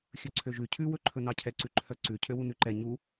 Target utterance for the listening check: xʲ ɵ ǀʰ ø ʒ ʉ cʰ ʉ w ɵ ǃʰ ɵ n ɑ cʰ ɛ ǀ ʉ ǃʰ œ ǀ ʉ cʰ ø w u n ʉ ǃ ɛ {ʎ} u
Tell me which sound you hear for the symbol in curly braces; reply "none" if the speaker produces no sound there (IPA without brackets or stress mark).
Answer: ɲ